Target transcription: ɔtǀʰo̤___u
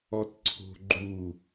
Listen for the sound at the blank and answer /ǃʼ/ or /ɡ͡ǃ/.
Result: ɡ͡ǃ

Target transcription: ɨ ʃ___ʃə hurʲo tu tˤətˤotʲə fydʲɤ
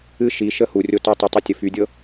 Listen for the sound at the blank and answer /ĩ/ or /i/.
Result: i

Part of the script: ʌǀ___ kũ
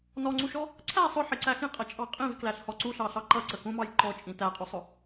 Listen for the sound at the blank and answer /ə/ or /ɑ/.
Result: ə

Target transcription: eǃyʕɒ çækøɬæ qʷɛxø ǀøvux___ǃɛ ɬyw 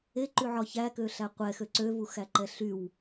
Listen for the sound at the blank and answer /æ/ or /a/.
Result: æ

